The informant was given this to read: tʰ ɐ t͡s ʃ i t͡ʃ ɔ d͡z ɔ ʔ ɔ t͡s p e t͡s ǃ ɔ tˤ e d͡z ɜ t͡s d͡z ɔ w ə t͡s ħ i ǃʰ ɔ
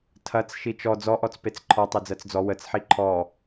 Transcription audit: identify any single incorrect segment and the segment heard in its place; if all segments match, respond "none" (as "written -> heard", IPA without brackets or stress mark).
ǃ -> ǃʰ